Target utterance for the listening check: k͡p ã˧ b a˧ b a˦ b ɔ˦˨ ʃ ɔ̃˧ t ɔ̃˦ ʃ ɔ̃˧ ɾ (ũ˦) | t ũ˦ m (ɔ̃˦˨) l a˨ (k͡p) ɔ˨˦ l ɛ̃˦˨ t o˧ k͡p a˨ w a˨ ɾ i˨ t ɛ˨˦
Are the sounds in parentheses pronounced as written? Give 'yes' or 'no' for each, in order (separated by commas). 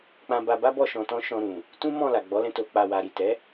no, yes, no